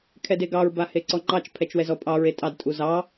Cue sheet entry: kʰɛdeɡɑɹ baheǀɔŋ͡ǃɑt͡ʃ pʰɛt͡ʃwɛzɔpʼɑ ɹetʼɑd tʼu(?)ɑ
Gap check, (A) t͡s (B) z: B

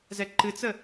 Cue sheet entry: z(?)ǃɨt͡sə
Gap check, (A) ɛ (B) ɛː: A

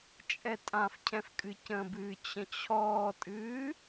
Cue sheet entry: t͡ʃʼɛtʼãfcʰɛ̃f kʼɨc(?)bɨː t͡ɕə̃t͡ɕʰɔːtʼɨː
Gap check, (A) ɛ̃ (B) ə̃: B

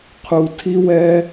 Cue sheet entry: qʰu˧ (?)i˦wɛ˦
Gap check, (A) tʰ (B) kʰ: A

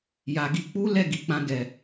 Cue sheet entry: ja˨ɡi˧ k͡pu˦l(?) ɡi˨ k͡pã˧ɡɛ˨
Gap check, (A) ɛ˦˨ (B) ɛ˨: A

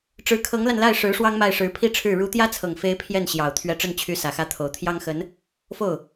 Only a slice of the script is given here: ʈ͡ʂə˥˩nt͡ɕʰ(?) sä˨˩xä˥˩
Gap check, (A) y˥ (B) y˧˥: B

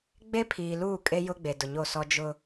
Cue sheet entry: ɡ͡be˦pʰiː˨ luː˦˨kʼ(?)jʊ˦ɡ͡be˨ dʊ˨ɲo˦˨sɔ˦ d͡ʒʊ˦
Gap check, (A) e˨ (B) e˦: B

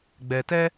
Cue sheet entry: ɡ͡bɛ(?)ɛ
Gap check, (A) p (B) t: B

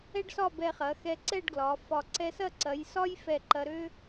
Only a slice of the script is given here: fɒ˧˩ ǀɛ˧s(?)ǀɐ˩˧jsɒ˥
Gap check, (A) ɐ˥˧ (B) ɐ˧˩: A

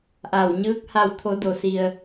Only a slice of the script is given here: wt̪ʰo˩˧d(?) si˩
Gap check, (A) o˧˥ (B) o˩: B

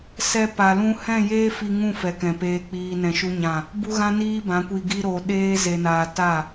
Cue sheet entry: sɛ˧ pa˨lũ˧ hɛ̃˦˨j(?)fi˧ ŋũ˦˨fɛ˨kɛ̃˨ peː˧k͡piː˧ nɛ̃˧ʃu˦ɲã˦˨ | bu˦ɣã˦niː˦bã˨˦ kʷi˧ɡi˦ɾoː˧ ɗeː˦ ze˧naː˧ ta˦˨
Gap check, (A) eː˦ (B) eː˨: A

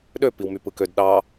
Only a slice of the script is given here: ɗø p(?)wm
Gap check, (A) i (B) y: A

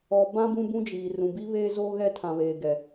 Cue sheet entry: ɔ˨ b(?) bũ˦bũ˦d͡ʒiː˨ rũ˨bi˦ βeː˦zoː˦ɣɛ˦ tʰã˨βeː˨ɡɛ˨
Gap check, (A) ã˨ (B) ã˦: B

